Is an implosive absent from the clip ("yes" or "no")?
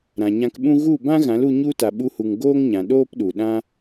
no